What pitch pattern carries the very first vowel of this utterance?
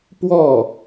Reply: falling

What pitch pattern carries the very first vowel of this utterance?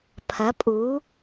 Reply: rising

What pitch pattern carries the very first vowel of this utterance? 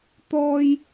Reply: high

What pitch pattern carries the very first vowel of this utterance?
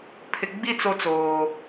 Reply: low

